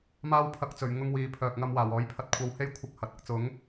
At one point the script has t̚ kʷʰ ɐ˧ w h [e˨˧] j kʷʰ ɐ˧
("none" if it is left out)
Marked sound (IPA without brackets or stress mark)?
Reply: e˥